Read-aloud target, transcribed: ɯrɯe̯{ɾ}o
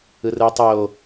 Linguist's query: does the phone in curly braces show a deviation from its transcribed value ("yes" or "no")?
yes